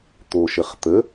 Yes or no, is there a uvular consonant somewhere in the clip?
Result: yes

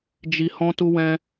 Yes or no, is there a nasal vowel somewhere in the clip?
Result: yes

